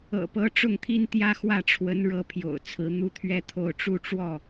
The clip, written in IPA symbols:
ɤ̰˨˩ p ɤ˨˦ ʈ͡ʂ ʊ˥˨ ŋ t̪ʰ i˦ n t̪ j ä˦ x w ä˥˨ ʈ͡ʂʰ w ə˨˦ n ɻ ɤ˨˦ pʰ j o̰˨˩ ʊ̯ t͡sʰ ɹ̩˨˦ n̪ u˦ t̪ʰ ɥ ɛ˦ t̪ʰ o˥˨ ʊ̯ ʈ͡ʂ u˦ ʈ͡ʂ w ɔ˥˨

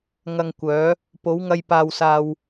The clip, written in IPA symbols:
ŋ ɐ˧ ŋ kʷ œː˨˥ | p o˨˥ w ŋ ɐ˧ j p aː˧ w s aː˧ w

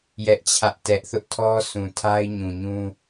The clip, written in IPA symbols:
j ɛ˦ ʔ t͡ɕʰ ä˦ ʔ t ɛ˦ ʔ θ ʊ˦ ʔ tʰ ɔ˦ sʰ ũ˨ tʰ a˦ ɪ̯ ɲ ũ˨ ɲ ũ˦

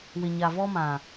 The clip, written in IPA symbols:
w ɪ˨ ɲ a˨ v ɔ˦ m ã˨

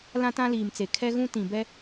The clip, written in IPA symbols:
l ã˦ t ã˦ l iː˨ m t͡s e˨ kʰ ɛ˦ ɣ ũ˦ t ĩ˨ b ɛ˦

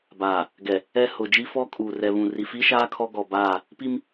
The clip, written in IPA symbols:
b aː˨ | ɡ ɛ˨ | ɛ˦ h ʊ˨ d͡ʒ i˦ f ɔ˦ kʼ uː˨ r ɛ˨ β ũ˨ r i˨ f i˦ ʃ aː˦ kʰ ɔ˦ ɡ ɔ˨ b aː˦˨ | p i˦ m

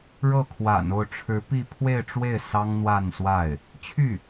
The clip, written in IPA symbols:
ɻ ɤ˥˩ kʰ w a̰˨˩ n o˥˩ ʊ̯ ʈ͡ʂʰ ɻ̩˧˥ p i˥˧ pʰ w e˥˧ ɪ̯ ʈ͡ʂ w e˥˩ ɪ̯ s ɑ˥ ŋ n̪ w a˥˧ n s w a˥˩ ɪ̯ | t͡ɕʰ y˥˩

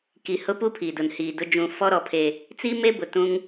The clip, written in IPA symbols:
k i˨ h ʊ˦ p u˦ pʰ i˨ d ʊ˨ n h iː˨ d ʊ˦ d͡ʒ ũ˨ f ɔ˦ ɾ ɔ˨ pʰ e˨ | t͡s i˦ m e˦ b ʊ˨ t ũ˦ ŋ

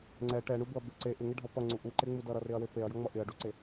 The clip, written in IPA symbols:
ŋ͡ǀ ɛ ʈ ɛ ɳ u b ʊ ɐ̯ b ɪ ǀ e ʔ ɪ ŋ ɪ ɖʱ ʌ p ʌ ŋ͡ǀ u ʔ u ǃ e ŋ͡m u d ʌ ɾ ʌ r ɪ ɐ̯ w e p e ɐ̯ j ʌ ŋ͡m ʌ ʔ ɪ ɐ̯ ɖ u ǀ e

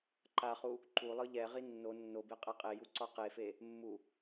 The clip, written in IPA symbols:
ǃ a χ u | ǃ u lˠ ɯ ʎ ɛ ʁ i nː o nː o b e qʼ ɛ qʼ e j u ǀ ɔ q e f e | mː u

